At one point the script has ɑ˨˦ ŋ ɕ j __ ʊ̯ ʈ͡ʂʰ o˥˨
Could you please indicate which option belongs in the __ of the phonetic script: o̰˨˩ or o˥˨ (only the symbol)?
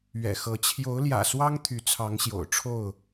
o̰˨˩